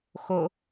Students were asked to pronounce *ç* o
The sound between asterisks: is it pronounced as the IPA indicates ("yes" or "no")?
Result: no